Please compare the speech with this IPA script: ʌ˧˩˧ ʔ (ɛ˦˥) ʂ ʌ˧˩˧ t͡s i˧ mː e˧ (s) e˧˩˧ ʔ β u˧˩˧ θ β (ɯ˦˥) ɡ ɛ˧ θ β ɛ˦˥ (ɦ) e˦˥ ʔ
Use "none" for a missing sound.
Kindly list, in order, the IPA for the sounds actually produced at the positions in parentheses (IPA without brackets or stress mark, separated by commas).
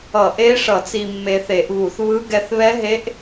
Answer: e˦˥, θ, ɯ˦˥, ɦ